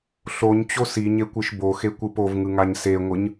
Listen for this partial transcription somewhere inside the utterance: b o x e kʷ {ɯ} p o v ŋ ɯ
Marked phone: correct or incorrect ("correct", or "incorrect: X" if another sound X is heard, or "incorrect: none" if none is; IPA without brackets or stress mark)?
correct